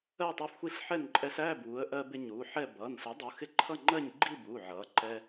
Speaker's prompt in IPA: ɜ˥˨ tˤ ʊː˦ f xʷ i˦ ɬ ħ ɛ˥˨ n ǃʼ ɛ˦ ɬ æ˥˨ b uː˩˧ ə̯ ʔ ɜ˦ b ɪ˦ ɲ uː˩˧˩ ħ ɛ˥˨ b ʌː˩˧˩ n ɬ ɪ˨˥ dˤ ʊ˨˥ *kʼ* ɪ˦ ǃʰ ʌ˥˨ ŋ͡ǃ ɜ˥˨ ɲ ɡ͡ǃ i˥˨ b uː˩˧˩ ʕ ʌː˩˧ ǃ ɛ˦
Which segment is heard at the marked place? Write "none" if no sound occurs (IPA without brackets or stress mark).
x